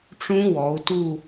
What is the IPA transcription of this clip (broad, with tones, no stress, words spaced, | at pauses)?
ʈ͡ʂũ˦˥wɔ˩˧u̯ tu˦˨